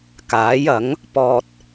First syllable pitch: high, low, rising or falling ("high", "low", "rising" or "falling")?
rising